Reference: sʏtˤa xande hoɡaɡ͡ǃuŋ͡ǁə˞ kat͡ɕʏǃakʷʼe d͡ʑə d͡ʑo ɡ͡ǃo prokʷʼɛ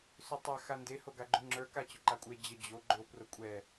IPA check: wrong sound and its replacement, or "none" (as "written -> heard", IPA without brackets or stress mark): none